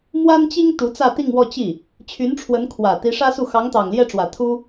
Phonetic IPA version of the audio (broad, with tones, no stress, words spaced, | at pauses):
mwa˥nt͡ɕi˥ŋ t̪u˧˥t͡sä˥˧t̪i˥˧ŋwɔ˥˧ t͡ɕi˥˩ | t͡ɕʰy˧˥nʈ͡ʂʰwə˧˥n kʰwä˨˩ t̪i˧˥ʂä˥su˥˩ xɑ˧˥ŋt̪ɑ˨˩ŋljɛ˥˩ʈ͡ʂwä˨˩ t̪ʰu˥